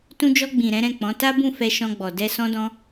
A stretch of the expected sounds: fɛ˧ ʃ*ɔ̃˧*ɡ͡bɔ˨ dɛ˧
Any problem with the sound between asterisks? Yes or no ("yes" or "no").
no